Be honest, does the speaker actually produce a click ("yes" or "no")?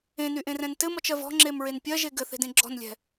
yes